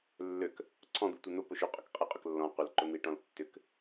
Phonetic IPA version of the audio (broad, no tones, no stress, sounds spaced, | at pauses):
lː ø k | ǀʰ ɔ̃ d̪ u tʷ e n̪ ʊ p ʊ ʃ ʏ qʼ ʊ k qʼ i qʼ ʏ k lː ɔ̃ qʷ ə l ǃ ʊ n̪ i ʈ ɔ̃ l tː ʏ k